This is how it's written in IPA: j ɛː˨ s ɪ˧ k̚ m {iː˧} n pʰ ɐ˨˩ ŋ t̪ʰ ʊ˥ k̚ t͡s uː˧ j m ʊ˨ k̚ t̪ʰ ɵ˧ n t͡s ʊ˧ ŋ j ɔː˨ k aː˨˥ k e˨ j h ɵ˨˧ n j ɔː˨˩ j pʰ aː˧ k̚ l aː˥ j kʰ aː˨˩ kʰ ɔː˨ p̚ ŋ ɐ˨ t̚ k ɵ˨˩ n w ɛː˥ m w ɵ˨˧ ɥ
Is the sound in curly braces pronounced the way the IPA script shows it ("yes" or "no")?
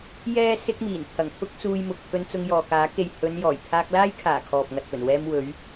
no